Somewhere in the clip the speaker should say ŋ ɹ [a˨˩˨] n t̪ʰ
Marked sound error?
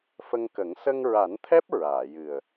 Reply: yes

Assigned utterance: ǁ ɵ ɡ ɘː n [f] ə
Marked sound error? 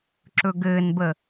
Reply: yes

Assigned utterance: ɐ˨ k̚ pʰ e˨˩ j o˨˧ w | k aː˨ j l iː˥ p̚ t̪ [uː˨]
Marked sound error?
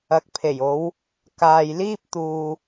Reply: no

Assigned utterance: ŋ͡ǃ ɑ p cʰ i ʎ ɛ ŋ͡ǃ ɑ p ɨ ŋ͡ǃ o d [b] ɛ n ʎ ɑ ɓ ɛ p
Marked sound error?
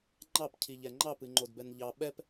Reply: no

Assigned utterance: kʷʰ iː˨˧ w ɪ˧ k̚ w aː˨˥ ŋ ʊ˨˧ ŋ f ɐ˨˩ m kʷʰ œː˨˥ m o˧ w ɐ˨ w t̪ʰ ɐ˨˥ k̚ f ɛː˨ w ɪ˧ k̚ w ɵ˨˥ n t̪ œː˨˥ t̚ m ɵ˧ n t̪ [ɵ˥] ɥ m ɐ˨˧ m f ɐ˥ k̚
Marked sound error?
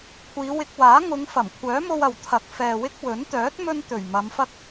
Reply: yes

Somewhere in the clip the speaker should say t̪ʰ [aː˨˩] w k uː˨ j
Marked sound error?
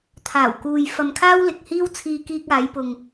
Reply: no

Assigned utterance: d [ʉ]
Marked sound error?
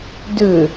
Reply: no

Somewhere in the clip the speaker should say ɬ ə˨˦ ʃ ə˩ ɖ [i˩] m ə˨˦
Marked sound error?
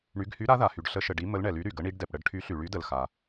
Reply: yes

